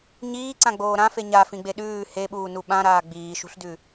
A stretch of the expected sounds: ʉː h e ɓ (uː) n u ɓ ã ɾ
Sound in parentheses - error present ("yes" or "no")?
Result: no